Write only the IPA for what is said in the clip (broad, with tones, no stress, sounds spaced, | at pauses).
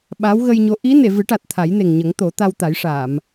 ɓ a˧˥ w ɣ ə˧ j ɲ o˧˥ ʔ i˧˥ n e˨˩˨ v ɨ˨˩˦ ʈ a˨˩ t̚ t̪ʰ a˨˩˦ j n e˨˩ ŋ ɲ ə˨˩˦ ŋ t̪ o˨˩˦ t̪ a˧ w t̪ a˨˩˦ j ʂ aː˨˩˨ m